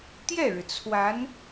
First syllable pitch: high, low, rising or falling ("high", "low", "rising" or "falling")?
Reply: falling